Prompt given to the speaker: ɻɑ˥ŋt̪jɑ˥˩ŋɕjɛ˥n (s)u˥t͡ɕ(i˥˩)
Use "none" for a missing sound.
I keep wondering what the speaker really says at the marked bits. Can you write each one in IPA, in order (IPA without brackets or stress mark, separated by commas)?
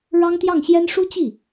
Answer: ʂ, i˥˩